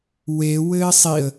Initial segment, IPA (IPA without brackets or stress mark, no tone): w